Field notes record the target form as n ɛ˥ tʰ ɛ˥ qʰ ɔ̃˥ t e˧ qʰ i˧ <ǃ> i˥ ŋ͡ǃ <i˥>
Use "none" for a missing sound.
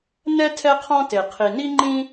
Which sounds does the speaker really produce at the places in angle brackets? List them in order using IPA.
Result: n, ĩ˥

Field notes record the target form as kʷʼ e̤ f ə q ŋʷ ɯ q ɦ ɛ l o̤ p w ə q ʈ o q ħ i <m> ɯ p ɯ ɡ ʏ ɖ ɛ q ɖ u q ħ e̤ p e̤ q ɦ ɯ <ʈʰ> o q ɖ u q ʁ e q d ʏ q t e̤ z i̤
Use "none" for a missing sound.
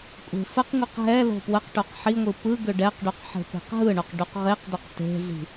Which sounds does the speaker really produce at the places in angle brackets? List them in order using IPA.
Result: ŋʷ, ɳ

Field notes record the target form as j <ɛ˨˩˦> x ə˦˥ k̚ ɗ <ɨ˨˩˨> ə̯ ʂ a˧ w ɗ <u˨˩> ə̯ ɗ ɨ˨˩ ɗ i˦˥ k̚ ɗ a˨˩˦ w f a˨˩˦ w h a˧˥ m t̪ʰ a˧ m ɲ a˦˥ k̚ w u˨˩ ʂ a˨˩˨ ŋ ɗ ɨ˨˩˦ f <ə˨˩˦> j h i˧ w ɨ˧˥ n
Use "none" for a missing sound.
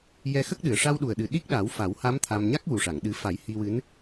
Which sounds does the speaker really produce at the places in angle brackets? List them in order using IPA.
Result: ɛ˧, ɨ˨˩, u˨˩, a˨˩˦

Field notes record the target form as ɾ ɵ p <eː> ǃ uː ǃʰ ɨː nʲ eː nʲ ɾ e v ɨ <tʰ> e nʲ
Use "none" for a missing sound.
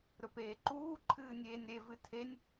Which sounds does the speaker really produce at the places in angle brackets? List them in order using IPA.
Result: eː, tʰ

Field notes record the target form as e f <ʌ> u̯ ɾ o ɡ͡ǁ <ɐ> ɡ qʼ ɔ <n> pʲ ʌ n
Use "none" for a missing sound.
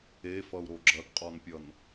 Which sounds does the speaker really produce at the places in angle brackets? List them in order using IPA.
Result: ʌ, ɐ, n

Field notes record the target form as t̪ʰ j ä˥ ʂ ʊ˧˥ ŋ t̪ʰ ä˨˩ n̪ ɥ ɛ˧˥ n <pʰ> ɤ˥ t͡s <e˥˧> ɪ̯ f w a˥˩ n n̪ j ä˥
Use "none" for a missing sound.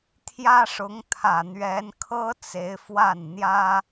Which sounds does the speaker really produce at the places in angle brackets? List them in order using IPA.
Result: kʰ, e˧˥

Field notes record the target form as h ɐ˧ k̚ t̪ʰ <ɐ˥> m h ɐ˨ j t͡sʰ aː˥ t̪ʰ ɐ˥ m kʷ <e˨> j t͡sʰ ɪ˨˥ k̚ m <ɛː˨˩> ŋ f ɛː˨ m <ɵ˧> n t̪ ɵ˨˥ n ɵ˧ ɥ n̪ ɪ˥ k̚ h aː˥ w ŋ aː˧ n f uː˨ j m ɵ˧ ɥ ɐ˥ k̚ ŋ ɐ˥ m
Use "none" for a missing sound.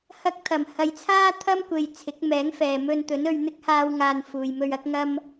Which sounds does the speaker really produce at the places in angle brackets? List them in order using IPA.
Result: ɐ˨˩, e˨, ɛː˨˥, ɵ˧

